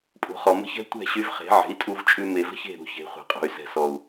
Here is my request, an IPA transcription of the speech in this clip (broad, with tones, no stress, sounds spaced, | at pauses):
pʼ ṳ˨ χ ɔ˨ m ə̤˦ ç ɛ̤˦ tʷ ɛ̤˦˨ ɕ y˧ v χ e̤˨˦ ʕ e̤˨˦ i̯ tʼ u˧ v t͡ʃʼ ʉ˧ m e˨ v ə̤˦ ç e̤˦˨ ɾ ṳ˦˨ ç e̤˨˦ χʷ e̤˨ qʼ ṳ˨ y̯ s ɛ̤˨ s ɔ˨ u̯